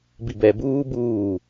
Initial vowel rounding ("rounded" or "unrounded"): unrounded